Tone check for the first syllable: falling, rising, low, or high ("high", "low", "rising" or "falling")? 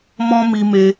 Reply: high